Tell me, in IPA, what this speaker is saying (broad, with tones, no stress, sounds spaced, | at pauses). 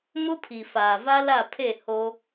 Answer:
m ʊ˦ pʰ i˨ f aː˨ v a˦ l a˦˨ pʰ e˦˨ h o˦